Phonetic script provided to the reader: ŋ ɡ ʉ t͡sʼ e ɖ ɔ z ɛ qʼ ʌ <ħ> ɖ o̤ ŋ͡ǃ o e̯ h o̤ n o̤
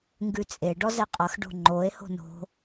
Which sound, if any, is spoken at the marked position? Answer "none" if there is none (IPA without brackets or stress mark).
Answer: x